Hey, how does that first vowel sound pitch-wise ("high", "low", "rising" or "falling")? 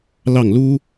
falling